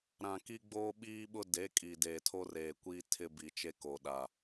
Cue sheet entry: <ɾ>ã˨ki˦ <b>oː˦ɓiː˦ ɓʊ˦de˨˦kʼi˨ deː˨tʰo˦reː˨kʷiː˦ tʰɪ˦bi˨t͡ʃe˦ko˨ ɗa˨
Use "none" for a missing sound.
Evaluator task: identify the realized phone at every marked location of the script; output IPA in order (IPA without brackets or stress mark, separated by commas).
ɾ, ɡ͡b